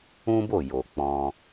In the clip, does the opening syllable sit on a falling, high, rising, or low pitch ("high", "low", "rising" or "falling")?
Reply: high